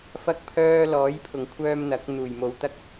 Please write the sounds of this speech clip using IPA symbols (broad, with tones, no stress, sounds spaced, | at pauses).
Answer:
f ɐ˥ k̚ pʰ œː˥ l ɔː˨˥ j pʰ ʊ˨˩ ŋ kʷʰ œː˧ m n̪ ɐ˨˥ k̚ n̪ uː˨˩ j m o˨˧ w t̪ ɐ˥ k̚